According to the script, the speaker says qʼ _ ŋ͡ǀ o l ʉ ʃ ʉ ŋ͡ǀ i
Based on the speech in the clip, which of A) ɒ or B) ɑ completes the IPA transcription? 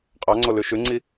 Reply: B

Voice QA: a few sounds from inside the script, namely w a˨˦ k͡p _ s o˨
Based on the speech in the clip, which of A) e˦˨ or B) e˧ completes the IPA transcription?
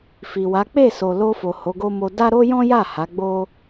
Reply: A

